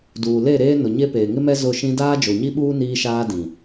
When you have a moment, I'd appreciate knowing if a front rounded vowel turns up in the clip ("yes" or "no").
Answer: no